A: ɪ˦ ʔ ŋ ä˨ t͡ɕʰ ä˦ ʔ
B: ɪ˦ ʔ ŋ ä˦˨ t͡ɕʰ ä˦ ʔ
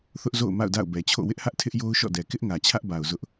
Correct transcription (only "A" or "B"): A